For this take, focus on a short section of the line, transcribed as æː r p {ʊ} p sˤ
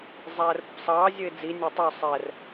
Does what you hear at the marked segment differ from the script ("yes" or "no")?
no